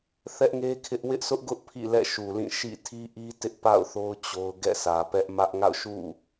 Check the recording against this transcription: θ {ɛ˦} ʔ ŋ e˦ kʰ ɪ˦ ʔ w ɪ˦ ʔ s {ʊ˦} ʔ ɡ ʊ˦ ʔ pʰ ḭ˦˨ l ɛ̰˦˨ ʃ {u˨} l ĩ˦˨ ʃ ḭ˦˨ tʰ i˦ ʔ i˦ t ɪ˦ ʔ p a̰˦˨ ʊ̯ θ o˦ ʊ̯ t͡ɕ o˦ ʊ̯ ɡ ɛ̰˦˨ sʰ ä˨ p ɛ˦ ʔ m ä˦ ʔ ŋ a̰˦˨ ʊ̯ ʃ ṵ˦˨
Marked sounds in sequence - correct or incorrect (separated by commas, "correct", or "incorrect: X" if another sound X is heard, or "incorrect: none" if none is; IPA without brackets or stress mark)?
correct, correct, correct